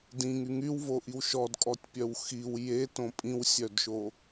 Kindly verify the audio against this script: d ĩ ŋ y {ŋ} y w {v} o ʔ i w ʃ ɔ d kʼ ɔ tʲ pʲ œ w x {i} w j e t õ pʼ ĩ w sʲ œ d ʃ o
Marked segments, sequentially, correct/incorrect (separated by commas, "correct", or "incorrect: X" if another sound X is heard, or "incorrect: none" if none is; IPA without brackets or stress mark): correct, correct, correct